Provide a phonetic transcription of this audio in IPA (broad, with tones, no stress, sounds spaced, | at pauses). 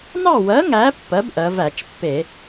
n ɑ˥˨ w ɜ˨˥ ŋ æ˨˥ pː ɜ˨˥ b ʔ ɜ˩˧ v æ˧˩˧ t͡ʃ pː e˧˩˧